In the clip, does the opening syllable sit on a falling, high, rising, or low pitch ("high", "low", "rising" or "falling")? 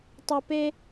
high